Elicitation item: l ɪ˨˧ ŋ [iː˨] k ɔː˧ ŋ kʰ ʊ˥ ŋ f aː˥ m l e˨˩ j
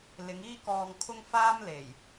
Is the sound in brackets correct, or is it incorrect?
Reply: incorrect